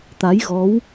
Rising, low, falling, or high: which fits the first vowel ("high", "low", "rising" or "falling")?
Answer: rising